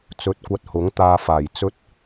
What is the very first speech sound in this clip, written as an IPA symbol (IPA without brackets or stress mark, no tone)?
t͡s